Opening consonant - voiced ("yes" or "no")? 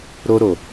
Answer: yes